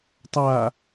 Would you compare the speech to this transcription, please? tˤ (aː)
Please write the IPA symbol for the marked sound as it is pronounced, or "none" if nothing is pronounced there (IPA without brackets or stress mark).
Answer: aː